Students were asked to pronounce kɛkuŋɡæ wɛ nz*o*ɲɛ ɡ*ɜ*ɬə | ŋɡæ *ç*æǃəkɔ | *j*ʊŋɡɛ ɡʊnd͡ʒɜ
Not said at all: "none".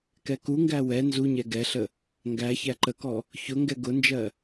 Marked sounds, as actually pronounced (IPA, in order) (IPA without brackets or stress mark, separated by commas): u, ɛ, ç, ç